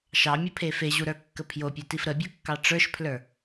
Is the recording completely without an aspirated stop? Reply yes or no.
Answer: no